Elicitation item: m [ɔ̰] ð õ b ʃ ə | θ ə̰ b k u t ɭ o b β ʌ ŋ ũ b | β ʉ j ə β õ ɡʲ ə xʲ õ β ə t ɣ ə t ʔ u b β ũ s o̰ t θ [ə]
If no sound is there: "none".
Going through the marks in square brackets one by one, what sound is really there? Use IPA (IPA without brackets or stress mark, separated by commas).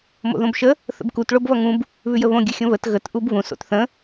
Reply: o̰, ə̃